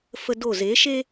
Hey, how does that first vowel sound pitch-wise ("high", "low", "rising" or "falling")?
high